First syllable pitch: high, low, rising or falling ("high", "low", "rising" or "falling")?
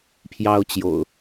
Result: high